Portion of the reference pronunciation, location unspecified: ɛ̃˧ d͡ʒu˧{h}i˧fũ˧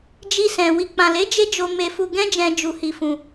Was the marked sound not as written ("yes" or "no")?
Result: no